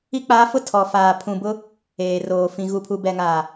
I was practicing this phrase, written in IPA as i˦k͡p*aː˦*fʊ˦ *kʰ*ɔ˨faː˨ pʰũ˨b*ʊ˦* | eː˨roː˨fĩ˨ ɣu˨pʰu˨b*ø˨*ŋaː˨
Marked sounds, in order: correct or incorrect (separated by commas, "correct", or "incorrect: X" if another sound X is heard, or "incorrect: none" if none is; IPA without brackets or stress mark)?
correct, incorrect: tʰ, correct, incorrect: ɛ˨